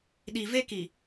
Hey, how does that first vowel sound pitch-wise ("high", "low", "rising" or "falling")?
low